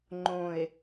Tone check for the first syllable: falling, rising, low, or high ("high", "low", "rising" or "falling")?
low